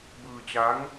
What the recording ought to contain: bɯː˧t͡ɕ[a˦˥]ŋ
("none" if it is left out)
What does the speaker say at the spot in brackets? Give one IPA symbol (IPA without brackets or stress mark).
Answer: a˦˥